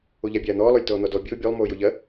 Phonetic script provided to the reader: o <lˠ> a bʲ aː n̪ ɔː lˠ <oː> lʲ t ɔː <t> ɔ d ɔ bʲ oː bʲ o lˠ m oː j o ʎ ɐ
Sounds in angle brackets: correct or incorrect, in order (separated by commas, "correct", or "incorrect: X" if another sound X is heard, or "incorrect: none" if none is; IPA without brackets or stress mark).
incorrect: ʎ, incorrect: o, incorrect: n̪